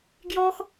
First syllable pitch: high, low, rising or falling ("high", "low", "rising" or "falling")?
high